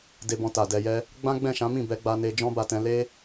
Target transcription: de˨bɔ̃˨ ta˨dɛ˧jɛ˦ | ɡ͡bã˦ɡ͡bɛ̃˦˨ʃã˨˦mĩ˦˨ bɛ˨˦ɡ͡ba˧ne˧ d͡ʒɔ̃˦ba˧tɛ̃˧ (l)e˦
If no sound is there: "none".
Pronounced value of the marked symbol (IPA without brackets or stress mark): l